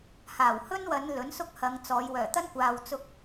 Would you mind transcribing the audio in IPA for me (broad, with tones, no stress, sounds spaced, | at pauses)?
h aː˨˩ w h ɵ˥ n w ɐ˨˧ n l ɵ˨˥ n s ʊ˥ k̚ h ɐ˨˧ ŋ t͡s ɔː˨˧ j w œː˨˩ t̪ ɐ˥ n kʷ aː˨ w t͡s ʊ˧ k̚